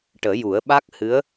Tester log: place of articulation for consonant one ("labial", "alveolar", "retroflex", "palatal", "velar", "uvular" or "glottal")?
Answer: retroflex